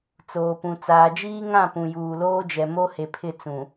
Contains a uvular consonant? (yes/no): no